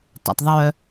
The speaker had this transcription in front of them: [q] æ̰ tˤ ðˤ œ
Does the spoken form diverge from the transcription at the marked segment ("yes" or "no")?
yes